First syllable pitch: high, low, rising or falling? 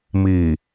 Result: low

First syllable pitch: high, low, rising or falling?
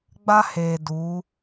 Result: high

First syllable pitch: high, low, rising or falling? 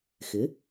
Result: rising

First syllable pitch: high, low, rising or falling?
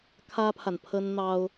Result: high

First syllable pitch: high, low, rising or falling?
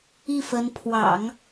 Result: falling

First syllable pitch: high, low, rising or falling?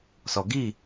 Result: low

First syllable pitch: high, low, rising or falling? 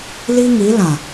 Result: high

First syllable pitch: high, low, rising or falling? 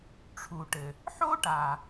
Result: low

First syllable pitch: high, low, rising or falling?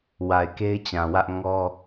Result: low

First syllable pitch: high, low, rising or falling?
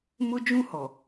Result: high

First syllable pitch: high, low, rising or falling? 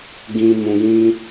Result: low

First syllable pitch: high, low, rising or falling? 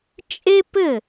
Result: high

